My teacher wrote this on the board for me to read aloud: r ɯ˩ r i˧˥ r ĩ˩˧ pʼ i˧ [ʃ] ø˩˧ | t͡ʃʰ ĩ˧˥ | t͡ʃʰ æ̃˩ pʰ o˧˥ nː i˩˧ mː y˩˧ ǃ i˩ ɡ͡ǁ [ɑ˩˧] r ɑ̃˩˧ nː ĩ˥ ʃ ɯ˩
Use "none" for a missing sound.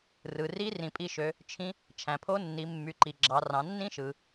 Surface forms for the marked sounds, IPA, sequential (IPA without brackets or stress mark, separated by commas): ʃ, ɑ˩˧